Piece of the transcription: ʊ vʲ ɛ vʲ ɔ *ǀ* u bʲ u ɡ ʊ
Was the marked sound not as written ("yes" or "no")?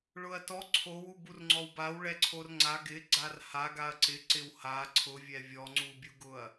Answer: yes